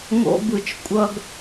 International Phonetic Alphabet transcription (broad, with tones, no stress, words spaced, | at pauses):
ŋo̰˧bɯ˨t͡ʃkʷʼʌ˧ɡ